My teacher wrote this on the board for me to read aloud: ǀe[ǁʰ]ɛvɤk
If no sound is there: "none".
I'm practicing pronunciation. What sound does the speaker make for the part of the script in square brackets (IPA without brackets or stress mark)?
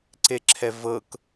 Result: ǁʰ